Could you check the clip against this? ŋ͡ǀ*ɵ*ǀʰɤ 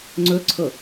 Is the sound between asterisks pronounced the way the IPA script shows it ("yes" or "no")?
yes